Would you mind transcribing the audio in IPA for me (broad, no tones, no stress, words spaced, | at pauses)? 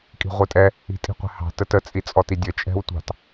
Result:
kʼi̤ʁʷitʼɛ | i̤tʼi̤qʷɛ̤hɑ̤ tətə t͡sʼit͡sʼɔtidʲə t͡ʃʼɛ̤wtʷɑ̤t